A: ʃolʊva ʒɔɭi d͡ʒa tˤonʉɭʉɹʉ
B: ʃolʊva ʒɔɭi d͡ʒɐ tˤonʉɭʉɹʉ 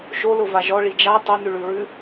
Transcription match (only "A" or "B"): A